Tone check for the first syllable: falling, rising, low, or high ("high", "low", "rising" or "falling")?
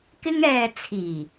high